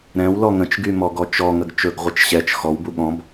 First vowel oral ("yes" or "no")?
no